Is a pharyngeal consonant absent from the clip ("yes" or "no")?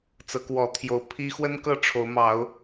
yes